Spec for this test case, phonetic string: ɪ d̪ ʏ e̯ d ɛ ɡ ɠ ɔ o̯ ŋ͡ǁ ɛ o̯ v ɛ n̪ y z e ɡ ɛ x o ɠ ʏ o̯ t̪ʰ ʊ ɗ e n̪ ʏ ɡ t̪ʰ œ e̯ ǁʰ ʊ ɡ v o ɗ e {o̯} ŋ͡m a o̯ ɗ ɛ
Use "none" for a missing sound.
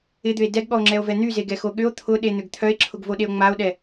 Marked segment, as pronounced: o̯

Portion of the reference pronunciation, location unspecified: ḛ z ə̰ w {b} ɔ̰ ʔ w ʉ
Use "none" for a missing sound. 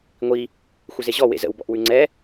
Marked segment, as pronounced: b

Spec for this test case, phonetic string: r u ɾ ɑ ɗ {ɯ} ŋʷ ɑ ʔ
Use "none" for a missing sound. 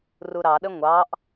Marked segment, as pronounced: ə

